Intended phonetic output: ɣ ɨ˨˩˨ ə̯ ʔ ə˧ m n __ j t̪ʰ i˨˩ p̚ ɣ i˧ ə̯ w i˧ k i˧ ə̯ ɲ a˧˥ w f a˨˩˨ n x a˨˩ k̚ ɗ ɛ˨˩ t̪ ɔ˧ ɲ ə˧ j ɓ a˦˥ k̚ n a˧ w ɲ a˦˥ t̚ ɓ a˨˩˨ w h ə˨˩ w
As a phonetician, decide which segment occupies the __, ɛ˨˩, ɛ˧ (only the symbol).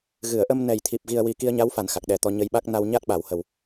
ɛ˨˩